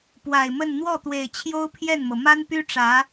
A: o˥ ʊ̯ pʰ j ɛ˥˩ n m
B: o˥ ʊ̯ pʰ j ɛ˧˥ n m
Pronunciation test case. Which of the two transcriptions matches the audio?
A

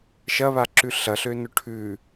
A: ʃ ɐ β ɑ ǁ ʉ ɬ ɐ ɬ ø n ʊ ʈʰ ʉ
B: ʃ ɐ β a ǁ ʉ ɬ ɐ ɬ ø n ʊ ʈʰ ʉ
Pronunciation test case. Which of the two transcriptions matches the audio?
B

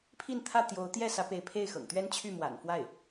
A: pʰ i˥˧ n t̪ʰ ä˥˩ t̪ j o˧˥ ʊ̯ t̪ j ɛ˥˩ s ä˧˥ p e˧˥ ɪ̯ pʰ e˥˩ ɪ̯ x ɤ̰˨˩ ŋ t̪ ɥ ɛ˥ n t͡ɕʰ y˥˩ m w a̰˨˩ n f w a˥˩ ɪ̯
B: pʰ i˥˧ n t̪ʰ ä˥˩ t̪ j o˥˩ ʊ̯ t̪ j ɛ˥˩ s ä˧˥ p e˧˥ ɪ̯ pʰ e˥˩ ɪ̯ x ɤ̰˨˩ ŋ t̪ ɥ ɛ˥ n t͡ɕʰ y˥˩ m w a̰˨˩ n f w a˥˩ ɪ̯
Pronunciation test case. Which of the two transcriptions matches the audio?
A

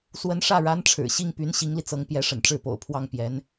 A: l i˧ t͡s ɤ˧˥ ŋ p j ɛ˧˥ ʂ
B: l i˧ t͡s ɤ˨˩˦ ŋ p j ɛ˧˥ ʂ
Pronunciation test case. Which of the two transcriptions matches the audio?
A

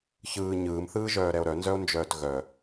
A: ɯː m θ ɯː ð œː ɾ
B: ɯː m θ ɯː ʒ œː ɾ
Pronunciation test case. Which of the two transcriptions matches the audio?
B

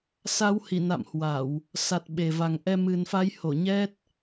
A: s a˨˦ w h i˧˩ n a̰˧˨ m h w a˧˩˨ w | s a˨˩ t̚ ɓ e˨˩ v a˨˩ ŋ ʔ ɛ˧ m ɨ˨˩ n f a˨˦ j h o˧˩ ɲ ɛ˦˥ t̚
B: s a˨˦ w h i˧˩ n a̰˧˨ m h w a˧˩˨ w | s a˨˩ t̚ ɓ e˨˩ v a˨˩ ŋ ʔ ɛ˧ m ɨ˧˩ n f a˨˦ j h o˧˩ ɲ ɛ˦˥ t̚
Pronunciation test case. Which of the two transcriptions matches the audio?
A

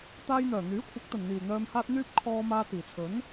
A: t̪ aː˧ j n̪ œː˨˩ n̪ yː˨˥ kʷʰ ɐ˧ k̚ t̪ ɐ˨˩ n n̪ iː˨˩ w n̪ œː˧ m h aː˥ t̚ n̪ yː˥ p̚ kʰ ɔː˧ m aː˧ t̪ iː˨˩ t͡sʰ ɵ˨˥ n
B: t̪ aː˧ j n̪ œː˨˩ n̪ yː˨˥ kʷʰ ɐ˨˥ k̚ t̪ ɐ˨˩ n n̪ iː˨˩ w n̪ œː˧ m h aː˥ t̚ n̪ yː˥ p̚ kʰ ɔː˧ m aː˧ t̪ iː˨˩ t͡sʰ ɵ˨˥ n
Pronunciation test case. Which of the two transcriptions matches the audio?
B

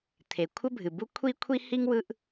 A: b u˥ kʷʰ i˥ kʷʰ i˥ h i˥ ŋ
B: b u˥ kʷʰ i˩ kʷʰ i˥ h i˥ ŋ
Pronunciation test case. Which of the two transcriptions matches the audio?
A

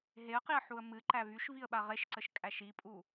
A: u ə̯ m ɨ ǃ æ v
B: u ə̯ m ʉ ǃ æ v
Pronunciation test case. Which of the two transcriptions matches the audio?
A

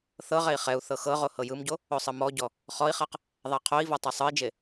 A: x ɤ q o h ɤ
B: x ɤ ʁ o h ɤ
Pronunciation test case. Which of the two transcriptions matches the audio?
B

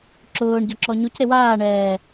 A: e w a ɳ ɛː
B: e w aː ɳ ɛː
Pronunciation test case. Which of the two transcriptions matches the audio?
B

